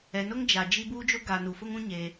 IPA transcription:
ɛ˨ n ʊ˦ ŋ d͡ʒ a˨ d͡ʒ i˦ b uː˦ d͡ʒ o˦ ɡ a˨ n u˨ f ʊ˦ ŋ ũ˦ ɲ eː˦

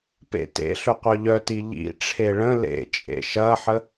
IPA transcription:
p ḛ t ḛ ɬ ɵ qʷ œ ʎ œ t i ʎ ḭ ʈ͡ʂʰ e ɭ ə̃ l ḛ t͡ʃʼ ḛ ʃ ɐ ħ ə

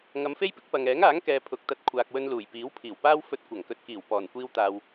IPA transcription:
ŋ ɐ˨˧ m f e˥ j p ɪ˥ k̚ p ɐ˨ ŋ ɛː˨˥ ŋ aː˨˥ ŋ k ɛː˨ pʰ ʊ˨ k̚ t̪ ɐ˧ t̚ kʷʰ aː˨ k̚ w ɵ˧ n l uː˨˩ j p iː˨˥ w pʰ iː˨˩ w p aː˥ w f ɵ˧ t̚ kʷ ɐ˨˩ ŋ k ɵ˨ t̚ k iː˨˩ w p ɔː˨˩ n kʷ iː˧ w t̪ aː˨ w

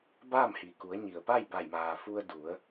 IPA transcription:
b aː˥˨ m h i˩ k u˩˧ ə̯ ɲ i˩ ə̯ p a˥˨ j b a˧˩ j m aː˩ f u˧ ə̯ d u˩˧ ə̯

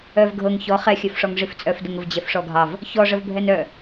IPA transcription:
œ v ɡʱ ɤ ŋ ç ɔ χ ɛ xʲ œ f ʂ ɔ ŋ ʐ i f t͡sʼ œ f d ə ŋ ə v d͡ʑ ɛ f ʂ ɔ ɡʱ ɑ v | ç ɔ ʐ ə v bʱ ɛ n œ

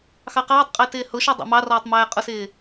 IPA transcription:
x ɑ q ɑː tˤ qʼ ɪː t ɪː h ʊ ʃ ɔ dˤ ɑ̰ m ɑ r ɔː tˤ m æː qʼ ʊ s ɪː

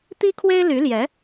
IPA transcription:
t̪ i˥ kʰ w e˥ ɪ̯ l y˧˥ l j ɛ˧˥

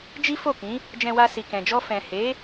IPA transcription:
d͡ʒ i˦ f o˦˨ k ĩ˨˦ | d͡ʒ ɛ̃˧ w a˧ s i˨ k ɛ̃˨ d͡ʒ ɔ˧ f ɛ̃˨ h e˨˦

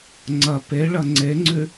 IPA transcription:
ŋ͡ǀ ɐ p e ɭ ɐ ŋ͡ǀ e ŋ͡ǀ ʉ

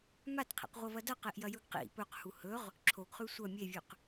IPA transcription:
m a t qʰ ḭ q ʁʷ ɐ v ɐ d ɐ q e ʔ j ɐ j ɵ ɡ q ḭ p ɵ q h u h ɵ ʁ | ǁʰ o ɡ χ ʉ sʷ ɐ mʲ e vʲ ʉ q

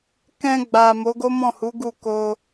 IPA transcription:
k ɛ̃˧ ɡ͡b a˨ m o˨˦ ɡ o˦ m ɔ̃˦˨ h u˨˦ ɡ u˦˨ k o˧

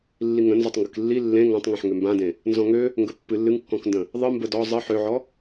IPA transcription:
lː i ŋ ə̃ n z ɔ tˤ ŋ ɡ ɨ k lː i lː ẽ ŋ ã tˤ ŋ ẽ ħ ŋ ø m b ã d ẽ | n z ɔ̃ ŋ ø | ŋ ɡ ə pː ɨ lː ɨ ŋ kː ɔ̃ k n d ə̃ | ðˤ ɨ m b ə d ɔ zˤ ɨ ħ ø ʕ ɔ

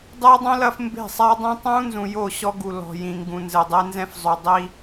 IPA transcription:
dˤ ɨː˦ dˤ ũ˦ l ɐ˦ f m b e̤˦˨ sˤ a˦ dˤ ɛ̃˦ tˤ ũː˦ n z ũ˨ j o˦˨ ɕ ɔ˦ ɡ u˨ l ɔ̤˨ j ĩ˨ ŋ ɡ ũ˨ n z ɘ˨ dˤ e˦ n z ɛ̃˦ f zˤ o˨ dˤ i˦

